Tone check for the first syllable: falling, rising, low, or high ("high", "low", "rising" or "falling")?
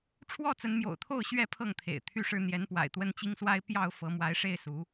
falling